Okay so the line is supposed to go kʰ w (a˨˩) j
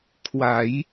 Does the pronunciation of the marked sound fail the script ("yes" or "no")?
yes